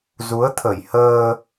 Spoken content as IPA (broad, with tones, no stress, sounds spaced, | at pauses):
z u˨˦ ə̯ t̪ʰ ə˧˩ j h əː˧